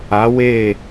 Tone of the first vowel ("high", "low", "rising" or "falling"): rising